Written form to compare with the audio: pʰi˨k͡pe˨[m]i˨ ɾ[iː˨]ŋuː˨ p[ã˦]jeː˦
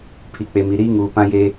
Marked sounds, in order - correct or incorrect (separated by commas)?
correct, incorrect, correct